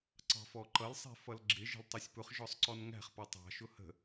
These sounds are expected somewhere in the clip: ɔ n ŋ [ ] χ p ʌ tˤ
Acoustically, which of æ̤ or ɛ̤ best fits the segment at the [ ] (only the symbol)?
æ̤